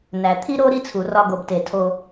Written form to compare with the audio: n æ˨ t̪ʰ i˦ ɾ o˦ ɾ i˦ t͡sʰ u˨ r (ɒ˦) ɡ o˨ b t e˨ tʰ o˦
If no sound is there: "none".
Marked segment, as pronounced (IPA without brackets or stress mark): ɒ˦